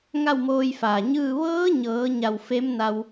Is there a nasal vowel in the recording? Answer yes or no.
no